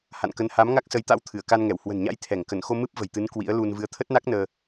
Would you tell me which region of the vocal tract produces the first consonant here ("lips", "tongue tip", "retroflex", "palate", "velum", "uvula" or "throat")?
throat